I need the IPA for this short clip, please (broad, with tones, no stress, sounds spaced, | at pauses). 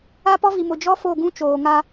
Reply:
a˦ p ɔ˦ v i˨ m ʊ˨ d͡ʒ ɔ˦ f o˦˨ ɡ ũ˦ t͡ʃ oː˨ ŋ a˦